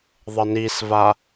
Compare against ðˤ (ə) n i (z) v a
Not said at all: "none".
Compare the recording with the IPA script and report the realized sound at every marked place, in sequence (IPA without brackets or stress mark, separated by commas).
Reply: ə, s